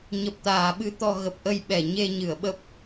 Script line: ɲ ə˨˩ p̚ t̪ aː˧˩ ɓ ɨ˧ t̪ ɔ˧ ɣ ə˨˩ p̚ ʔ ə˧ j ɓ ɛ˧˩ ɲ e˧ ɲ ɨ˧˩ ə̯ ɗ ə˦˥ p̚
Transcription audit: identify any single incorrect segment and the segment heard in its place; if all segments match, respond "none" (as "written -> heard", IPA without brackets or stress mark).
ɗ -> ɓ